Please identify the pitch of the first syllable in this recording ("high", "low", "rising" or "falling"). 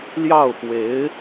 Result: falling